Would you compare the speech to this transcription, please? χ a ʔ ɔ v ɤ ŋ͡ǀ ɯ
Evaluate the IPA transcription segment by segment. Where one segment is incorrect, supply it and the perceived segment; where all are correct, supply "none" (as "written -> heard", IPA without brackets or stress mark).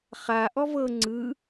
none